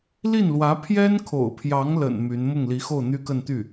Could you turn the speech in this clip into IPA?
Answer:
l i˥˩ n l w ä˧˥ pʰ j ɛ˥ n kʰ o̰˨˩ ʊ̯ pʰ j ɑ˧˥ ŋ l ə̰˨˩ n m y˧˥ n m ʊ˥˩ ŋ l i˧˥ x o˥˩ ʊ̯ n̪ y˥ k ə˥˧ n t̪ y˥˩

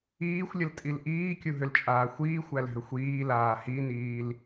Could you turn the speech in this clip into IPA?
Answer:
iː xʷ lʲ ə l tʼ i l ʔ iː kʲ u ɦ ʏ l t͡ʃʼ aː xʷ iː xʷ æ l ɦ ʏ xʷ iː l aː h i n iː l

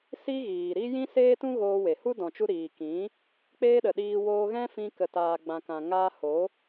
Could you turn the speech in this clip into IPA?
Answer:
s i˦ ɣ iː˨ ɾ i˦ j ĩ˦ s eː˦ t ũ˦ ɣ oː˧ w e˨ h u˦ d ɔ̃˨ t͡ʃ u˧ ɾ iː˨ k ĩ˨˦ | k͡p eː˦ ɗ ə˨ ɗ iː˧ w oː˧ ɣ ɛ̃˦ f ĩ˧ k ə˨ t aː˨ ɡ͡b ã˨ k ã˨ ŋ aː˧ h o˨˦

